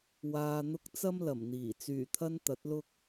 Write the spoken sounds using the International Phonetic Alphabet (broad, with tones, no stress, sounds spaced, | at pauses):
w aː˨ n̪ ʊ˧ k̚ t͡s ɐ˥ m l ɐ˨˩ m n̪ iː˨˩ t͡s yː˨˩ t̪ʰ ɐ˧ n t̪ ɐ˨˥ t̚ l ʊ˥ k̚